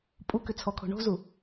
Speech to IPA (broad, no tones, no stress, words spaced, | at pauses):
pʼukʏ t͡sʰɔkʰo̤ ɳo̤zu